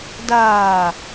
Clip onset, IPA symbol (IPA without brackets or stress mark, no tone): d